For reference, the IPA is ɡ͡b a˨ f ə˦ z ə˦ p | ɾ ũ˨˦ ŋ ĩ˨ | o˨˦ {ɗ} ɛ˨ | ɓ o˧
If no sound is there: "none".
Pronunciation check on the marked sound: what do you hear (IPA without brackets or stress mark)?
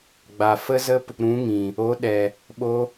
ɗ